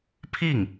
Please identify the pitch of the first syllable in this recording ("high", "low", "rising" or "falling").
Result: falling